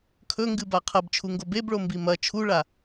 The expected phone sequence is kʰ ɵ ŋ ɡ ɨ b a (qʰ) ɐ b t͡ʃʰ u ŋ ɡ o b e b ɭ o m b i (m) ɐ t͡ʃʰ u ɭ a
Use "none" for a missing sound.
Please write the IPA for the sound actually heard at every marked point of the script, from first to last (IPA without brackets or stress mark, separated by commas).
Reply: qʰ, m